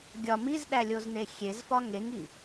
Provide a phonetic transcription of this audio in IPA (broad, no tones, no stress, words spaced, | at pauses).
ɡʲɒ mizɗælʲozne xʲezfɒ ŋeŋi